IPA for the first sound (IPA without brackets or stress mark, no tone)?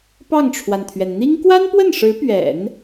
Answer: p